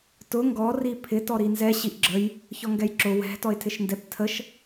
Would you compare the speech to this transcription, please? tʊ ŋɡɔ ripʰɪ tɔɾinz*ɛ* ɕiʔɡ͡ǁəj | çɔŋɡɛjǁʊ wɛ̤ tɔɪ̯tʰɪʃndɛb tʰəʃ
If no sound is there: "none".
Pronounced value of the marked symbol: ɛ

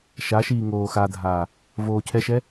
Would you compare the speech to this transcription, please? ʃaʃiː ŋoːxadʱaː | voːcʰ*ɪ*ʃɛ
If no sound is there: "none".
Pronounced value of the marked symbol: ɛ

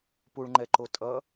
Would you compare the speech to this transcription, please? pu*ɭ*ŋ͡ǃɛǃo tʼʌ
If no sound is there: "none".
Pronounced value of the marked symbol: ɭ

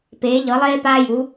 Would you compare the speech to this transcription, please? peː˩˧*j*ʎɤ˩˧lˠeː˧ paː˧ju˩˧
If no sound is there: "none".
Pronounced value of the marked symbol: none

